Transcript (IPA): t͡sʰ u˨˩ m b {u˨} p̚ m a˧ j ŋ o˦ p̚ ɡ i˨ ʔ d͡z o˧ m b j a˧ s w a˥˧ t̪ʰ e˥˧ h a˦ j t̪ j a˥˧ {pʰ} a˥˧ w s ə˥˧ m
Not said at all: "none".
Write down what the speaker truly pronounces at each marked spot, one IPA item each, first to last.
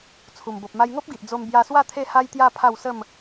o˨, pʰ

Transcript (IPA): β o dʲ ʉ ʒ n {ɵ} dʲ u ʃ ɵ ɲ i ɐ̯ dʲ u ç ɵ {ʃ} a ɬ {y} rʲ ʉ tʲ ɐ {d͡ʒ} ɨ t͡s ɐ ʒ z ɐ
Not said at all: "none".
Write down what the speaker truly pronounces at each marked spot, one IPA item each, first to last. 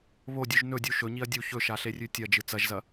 ɵ, ʃ, e, d͡ʒ

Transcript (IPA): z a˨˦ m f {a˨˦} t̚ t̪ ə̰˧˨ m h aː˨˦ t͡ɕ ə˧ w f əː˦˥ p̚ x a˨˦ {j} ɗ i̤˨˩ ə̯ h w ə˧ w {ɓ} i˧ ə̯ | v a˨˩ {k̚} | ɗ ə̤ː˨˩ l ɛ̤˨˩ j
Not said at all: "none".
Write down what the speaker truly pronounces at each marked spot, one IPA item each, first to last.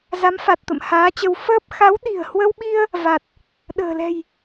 a˨˩, w, ɓ, t̚

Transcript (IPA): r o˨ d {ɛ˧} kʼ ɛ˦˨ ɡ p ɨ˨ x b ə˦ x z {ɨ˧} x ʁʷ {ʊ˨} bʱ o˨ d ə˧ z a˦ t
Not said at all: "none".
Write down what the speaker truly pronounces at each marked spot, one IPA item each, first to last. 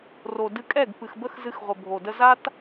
ɨ˧, ɨ˧, ə˨

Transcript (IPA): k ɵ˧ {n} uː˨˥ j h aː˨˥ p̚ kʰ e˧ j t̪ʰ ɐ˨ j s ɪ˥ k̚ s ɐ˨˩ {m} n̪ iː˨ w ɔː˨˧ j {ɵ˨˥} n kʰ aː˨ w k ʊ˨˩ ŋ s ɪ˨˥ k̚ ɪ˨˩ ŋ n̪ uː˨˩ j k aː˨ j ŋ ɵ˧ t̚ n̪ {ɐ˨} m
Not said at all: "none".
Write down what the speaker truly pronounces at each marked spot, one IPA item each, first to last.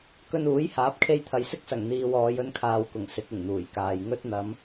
n, ŋ, ɵ˧, ɐ˨˧

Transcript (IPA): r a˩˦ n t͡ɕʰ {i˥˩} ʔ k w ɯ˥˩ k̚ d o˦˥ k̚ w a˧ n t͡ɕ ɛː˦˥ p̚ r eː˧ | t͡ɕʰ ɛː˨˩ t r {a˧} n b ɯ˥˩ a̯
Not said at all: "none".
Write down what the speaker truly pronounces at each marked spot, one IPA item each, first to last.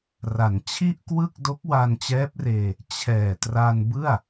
i˥˩, a˧

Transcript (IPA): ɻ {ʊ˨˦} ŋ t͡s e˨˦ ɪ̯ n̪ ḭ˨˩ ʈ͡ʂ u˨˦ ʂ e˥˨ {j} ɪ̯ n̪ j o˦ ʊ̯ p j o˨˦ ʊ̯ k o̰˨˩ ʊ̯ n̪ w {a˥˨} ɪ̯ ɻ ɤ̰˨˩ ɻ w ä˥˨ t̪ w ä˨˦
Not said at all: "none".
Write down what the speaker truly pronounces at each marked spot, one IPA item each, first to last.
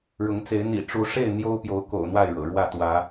ʊ˨˦, none, a˥˨

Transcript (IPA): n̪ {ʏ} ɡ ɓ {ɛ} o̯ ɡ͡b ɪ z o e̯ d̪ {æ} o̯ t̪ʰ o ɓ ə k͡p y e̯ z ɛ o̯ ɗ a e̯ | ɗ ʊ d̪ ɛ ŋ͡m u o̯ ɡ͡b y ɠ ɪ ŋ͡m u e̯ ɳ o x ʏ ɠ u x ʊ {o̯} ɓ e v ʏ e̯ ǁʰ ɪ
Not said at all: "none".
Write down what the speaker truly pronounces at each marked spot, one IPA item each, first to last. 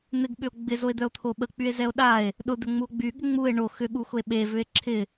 ɪ, ʏ, œ, e̯

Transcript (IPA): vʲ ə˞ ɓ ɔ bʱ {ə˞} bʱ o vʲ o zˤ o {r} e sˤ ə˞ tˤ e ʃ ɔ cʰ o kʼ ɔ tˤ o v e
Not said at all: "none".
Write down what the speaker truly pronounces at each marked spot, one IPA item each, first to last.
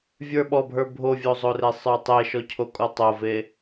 ə˞, r

